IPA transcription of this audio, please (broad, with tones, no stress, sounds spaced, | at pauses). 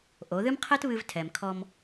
ʔ o˩˧ ð ɨ˥ m qʰ ɛ˥ t β ɨ˧ v tʰ ɛ˩ m kʰ ɔ˧ m